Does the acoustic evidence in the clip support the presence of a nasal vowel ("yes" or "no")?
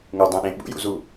yes